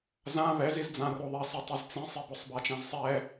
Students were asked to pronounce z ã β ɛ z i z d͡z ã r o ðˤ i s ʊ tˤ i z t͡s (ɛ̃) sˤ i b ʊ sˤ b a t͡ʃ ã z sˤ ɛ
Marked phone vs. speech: incorrect: ẽ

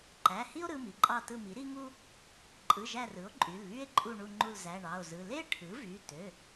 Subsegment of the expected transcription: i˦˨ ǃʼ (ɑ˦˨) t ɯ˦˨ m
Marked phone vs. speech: correct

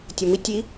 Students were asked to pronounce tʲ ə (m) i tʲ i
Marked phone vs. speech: correct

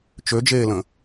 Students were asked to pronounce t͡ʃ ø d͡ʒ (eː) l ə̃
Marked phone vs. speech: correct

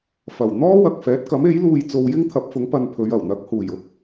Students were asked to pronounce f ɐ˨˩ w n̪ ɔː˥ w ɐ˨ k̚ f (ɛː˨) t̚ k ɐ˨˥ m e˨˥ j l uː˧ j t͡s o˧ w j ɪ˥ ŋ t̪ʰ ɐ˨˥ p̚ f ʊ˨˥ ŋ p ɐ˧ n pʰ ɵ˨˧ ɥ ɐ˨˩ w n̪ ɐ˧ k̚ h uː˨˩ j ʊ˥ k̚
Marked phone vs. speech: incorrect: ɛː˨˥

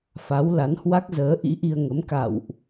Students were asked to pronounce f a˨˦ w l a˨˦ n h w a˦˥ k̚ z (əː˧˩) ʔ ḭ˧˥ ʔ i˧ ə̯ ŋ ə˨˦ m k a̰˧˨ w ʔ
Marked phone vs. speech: incorrect: əː˨˦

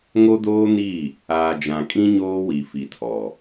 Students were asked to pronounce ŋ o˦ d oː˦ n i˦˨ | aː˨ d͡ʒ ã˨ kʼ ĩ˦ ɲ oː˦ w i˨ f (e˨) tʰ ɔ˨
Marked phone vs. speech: incorrect: i˨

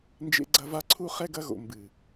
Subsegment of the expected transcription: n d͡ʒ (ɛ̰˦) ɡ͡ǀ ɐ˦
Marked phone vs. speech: incorrect: ḛ˦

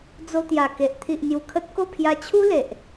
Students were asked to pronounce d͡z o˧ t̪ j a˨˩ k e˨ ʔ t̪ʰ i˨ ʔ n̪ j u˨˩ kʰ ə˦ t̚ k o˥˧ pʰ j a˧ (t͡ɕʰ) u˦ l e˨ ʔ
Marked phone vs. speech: correct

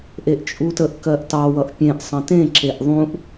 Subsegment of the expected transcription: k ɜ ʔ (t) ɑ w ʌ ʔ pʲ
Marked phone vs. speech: correct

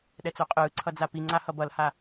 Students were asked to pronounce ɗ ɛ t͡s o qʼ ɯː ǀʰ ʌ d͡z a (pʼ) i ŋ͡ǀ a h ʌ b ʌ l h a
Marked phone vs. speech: incorrect: p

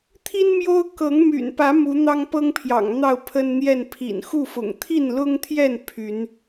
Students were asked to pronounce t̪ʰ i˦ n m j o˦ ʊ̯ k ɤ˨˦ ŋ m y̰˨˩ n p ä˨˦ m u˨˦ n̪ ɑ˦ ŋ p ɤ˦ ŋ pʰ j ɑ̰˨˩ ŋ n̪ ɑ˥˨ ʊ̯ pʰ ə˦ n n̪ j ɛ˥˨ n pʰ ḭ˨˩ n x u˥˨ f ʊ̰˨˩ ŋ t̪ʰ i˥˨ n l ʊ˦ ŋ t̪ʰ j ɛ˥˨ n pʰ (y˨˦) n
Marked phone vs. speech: correct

